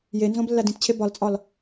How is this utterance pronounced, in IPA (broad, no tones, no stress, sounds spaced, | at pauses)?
j e n z õ b lː æ d ĩ t t͡ɕʰ e b ɒ l t͡sʼ ɒ l